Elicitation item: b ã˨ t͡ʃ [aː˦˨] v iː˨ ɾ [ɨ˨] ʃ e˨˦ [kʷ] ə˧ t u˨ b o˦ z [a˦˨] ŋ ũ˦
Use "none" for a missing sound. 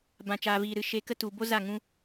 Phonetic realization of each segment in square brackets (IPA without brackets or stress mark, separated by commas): aː˨, ɨ˨, k, a˦˨